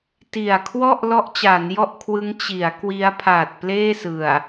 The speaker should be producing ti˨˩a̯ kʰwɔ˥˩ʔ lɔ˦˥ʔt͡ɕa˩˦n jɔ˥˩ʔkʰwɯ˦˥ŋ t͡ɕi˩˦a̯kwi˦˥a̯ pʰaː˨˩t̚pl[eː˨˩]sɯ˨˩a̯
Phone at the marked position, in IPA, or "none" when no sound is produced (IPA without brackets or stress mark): eː˥˩